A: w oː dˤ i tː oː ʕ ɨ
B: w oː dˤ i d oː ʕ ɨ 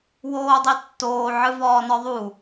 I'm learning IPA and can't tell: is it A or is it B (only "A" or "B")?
A